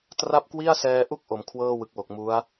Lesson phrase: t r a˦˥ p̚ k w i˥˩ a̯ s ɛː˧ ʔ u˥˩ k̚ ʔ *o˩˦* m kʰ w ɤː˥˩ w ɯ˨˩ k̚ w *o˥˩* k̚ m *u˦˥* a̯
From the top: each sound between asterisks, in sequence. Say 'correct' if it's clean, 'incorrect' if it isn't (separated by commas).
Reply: correct, incorrect, correct